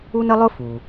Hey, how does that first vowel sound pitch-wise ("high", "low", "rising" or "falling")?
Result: high